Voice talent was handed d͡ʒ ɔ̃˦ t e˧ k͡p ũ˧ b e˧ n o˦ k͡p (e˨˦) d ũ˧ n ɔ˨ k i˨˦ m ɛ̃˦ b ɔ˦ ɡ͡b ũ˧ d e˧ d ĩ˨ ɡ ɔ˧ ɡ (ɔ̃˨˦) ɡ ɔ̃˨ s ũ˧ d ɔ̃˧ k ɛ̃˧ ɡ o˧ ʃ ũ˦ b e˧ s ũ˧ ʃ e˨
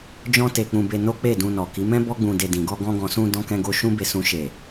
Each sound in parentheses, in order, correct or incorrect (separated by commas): incorrect, incorrect